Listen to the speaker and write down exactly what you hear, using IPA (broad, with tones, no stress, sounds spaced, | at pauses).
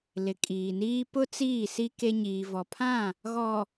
l ɪ˨ kʼ iː˨ n iː˦ p ʊ˦ t͡s iː˦˨ s i˦ k e˦ ɲ iː˨ v ɔ˨ pʰ ã˦˨ | ɣ ɔ˨